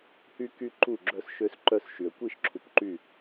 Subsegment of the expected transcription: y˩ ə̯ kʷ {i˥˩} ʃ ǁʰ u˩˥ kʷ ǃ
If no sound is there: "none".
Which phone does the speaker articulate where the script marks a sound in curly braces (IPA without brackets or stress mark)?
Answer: i˥˩